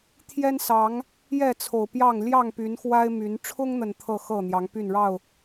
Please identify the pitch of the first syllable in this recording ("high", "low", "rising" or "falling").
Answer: high